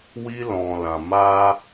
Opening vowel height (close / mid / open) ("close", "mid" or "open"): close